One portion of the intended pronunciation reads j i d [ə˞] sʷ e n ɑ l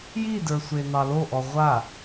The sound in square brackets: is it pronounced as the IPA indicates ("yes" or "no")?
yes